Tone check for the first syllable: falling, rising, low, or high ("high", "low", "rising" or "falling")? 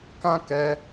high